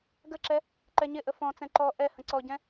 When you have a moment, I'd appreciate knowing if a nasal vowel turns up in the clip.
yes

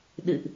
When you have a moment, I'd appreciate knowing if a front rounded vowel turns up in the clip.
no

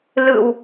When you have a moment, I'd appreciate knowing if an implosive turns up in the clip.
no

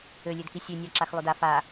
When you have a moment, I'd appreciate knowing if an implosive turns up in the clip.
no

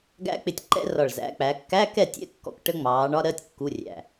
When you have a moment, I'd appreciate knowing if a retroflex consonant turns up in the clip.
yes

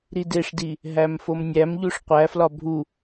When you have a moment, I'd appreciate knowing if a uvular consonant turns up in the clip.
yes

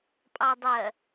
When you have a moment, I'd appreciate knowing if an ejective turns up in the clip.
yes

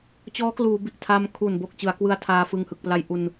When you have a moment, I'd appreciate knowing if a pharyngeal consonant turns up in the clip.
no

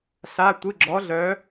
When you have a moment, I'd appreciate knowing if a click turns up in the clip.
yes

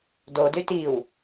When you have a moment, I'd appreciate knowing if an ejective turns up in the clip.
no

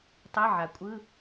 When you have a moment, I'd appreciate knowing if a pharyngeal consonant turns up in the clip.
yes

